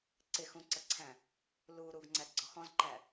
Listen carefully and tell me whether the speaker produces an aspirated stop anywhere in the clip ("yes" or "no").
yes